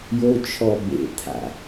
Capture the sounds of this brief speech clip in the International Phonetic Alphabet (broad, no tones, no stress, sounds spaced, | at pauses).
j o t͡ʃʰ ɔ b ḛ t̪ʰ a̰